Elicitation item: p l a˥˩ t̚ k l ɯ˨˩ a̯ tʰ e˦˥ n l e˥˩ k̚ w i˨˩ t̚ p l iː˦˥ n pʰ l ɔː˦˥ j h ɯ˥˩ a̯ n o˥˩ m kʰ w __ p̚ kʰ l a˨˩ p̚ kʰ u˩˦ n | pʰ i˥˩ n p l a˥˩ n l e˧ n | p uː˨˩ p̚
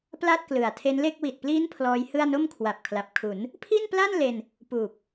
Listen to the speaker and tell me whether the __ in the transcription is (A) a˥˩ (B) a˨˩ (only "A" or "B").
B